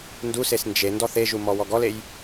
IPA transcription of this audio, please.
n d u s e s n d͡ʒ e n d ɔ θ e ʒ u m ɔ w ɔ ɡ ɔ l e j

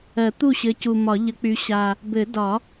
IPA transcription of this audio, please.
ɜ˨˩˦ t̪ u˥˩ ɕ ɘ˨˦ c u˨˩ m ɒ˨˩˦ ʎ ə˨˦ k͡p y˨˦ ɕ a˨˩ | b ɘ˨˩˦ d ɒ˨˩˦

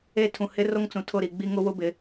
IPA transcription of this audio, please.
e˦˨ tʰ ũ˨ h ɪ˦ r o˦ ŋ t͡s ũ˨ tʰ ʊ˦˨ ɾ i˨ ɡ͡b i˦ ŋ ʊ˦ w ʊ˦ b ɪ˨˦

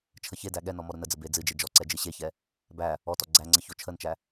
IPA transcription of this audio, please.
t͡ʃʰ ə ç e d æ ɠ ɛ n ɔ m ɔ ɾ ʊ n ə d͡z ə b e d͡z ɨ d͡ʒ e d͡ʒ ɔ ǀ ɛ d͡ʒ ɨ ɕ e ç ɛ | b æ | ɔ t ɔ ɡ͡ǀ æ ŋ͡ǀ ə ç o t͡ʃʰ ə n t͡ʃ æ

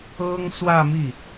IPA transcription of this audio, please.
ɤ˥ ŋ s w ä˥˧ m i˥˩

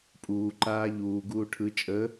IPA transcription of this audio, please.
pʼ uː ǃ aː ʎ uː ɡ uː ʈʰ ɯ t͡ʃʼ ə

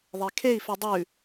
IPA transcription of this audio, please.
ðˤ e kʰ e i̯ f ʉ dˤ ʉ

